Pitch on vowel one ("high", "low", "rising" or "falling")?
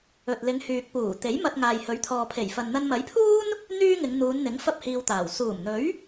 low